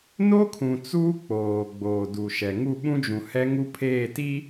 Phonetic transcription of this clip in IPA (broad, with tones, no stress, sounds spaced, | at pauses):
n o˦ kʰ ũ˨ t͡s uː˦ k͡p oː˨ ɡ͡b oː˨ d u˨ ʃ ɛ˨ ŋ u˦˨ ɓ ũ˦ d͡ʒ ũ˨ h ɛ˦ ŋ u˦ pʰ eː˦˨ t i˦